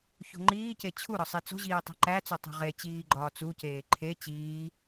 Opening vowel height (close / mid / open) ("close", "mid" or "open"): mid